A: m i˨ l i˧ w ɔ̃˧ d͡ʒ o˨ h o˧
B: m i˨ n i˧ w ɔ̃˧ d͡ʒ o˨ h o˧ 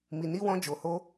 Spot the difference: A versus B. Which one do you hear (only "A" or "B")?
B